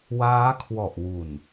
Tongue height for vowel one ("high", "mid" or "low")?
low